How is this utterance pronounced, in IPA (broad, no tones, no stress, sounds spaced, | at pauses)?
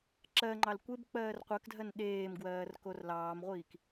ǁ ɜ ŋ͡ǃ ɑ l kʷ e b k͡p ɜː r qʷ ɜ k dʱ ɜ n ɗ eː m ɡ w ɜː r k o r l ɑː m ʁʷ iː k